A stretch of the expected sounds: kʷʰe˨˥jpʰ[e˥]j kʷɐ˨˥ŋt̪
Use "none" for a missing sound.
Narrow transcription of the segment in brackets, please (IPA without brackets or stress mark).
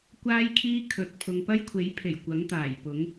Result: e˨˩